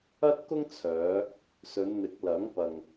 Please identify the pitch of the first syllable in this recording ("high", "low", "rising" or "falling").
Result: high